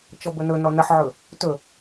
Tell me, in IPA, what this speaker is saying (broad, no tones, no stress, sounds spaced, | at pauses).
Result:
t͡ʃ ɔ b ɵ n ɵ n ɔ n ə ħ ʕ ɵ | t ɵ